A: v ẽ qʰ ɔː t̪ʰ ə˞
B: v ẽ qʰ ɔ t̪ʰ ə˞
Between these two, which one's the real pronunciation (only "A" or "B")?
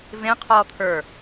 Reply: A